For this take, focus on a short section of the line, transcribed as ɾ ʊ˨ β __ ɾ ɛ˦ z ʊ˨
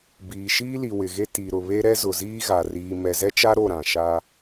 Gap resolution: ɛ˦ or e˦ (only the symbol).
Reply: e˦